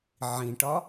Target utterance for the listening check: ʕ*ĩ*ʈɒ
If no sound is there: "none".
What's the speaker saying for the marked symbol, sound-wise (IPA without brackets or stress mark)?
ĩ